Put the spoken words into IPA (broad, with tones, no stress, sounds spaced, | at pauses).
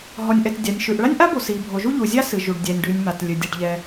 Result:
ɦ ɔ˩ nʲ ʔ ɛ˩ t dʲ a˩ nʲ ʃ ʉ˩ ʔ ɭ a˥ nʲ ʔ a˥ b o˩ s i˩ bʱ o˩ ʒ u˥ ʎ u˩ zʲ a˥ s ɨ˩ ʒ u˩ ɖ dʲ ɛ˩ nʲ ɖ ʉ˩ nʲ m a˩ t lʲ ɨ˩ dʲ ɛ˩ ɖ ʎ ɛ˩